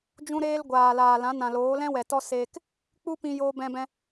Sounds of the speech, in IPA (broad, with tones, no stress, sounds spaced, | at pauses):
d͡ʒ ũ˧ ɾ eː˧ l ɡʷ aː˨ l aː˨ l ã˨˦ n ã˨ l oː˨˦ l ɛ̃˦ w ɛ˨ t ɔ˦ s eː˧ k | k͡p u˦ p ĩ˧ j oː˧ b ɛ̃˧ b ɛ̃˧